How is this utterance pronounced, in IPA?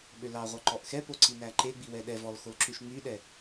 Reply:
ɓ ø l ɑ ʁʷ ɑ ǃ ɔ ʔ x ɛ p o ǀ i n æ ǃ e ɡ͡b i w ɛ ɗ ɛ v ɔ l x o l ǁ ʉ ʃ ŋ͡m y ɗ ɛ

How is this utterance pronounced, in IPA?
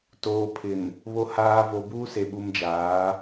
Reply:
t oː˨ pʰ ɪ˨ n | β o˨ h aː˨ v o˨ b uː˦ s e˨ ɓ u˨ m d͡ʒ aː˨˦

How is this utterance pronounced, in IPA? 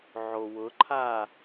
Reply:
ʕ o w ʊ ǃʰ a

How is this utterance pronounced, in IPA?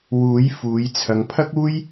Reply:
w uː˨˥ j f uː˨˧ j t͡sʰ ɐ˨˧ ŋ pʰ ɐ˥ k̚ uː˥ j

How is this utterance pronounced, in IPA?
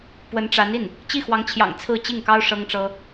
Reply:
p w ə˧˥ n ʈ͡ʂ a˧˥ n i˥˩ n | t͡ɕ i˥˩ x w ɑ˧˥ ŋ t͡ɕʰ j ɑ̰˨˩ ŋ t͡sʰ ɹ̩˥˧ t͡ɕ i˥˩ ŋ k ɑ˥ ʊ̯ ʂ ɤ˥ ŋ ʈ͡ʂ ɤ˥

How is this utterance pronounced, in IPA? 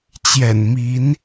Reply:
t͡ɕ j ɛ̰˨˩ n m i˨˦ n

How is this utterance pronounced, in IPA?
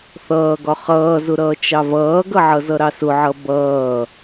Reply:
θ ʌː ɡ ɒ χ ʌː z ʊ ɾ ʌː t͡ʃ ɑ v ʌː ɡ ʌ ʕ ʌ z ʌ ɾ ɑ s ʊ ʕ ʌ b ʌː

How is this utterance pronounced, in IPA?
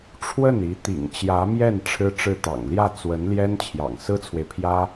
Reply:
ʈ͡ʂʰ w ə˥˩ n i˧˥ t̪ ḭ˨˩ ŋ t͡ɕ j ä˧˥ m j ɛ˥˩ n ʈ͡ʂʰ ɻ̩˥ ʈ͡ʂ ɻ̩˥˩ t̪ ɑ̰˨˩ ŋ l j ä˥˩ t͡s w ə˧˥ n l j ɛ˥ n t͡ɕʰ j ɑ̰˨˩ ŋ s ɹ̩˥ t͡sʰ w e˨ ɪ̯ pʰ j ä˥

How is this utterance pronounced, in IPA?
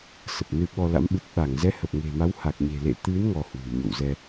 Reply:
s ə˨˩ p̚ n ɨ˧ ɓ ɔ˧ l a̰˧˥ m ɓ ɨ˨˩ t̚ ɓ a˧˩ ŋ z ɛ˨˦ h ə˨˩ p̚ ŋ e̤˨˩ m a˨˦ w h a˨˩ k̚ ɲ e̤˨˩ l ḛ˧˨ t̪ ɨ˨˦ n ŋ ɔ˧ h w ṳ˨˩ ɲ o̰˧˨ w z ɛ˧

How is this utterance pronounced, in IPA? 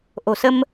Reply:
ʔ o̤˨˩ s ə˧ m

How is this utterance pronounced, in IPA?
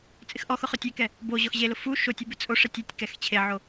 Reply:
t͡sʼ ɪ x ʔ ɔ x ʊ χ ʊ tʲ e k ɛ | b o ʑ ɔ x ʑ e l ʊ f u ʃ o tʲ o b ɪ t͡sʼ o ʂ ɛ tʲ ɛ tʲ k ɛ x t͡ɕʰ e ʕ o

